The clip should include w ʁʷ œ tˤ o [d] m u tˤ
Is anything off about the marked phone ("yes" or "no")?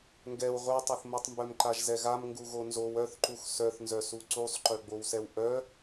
yes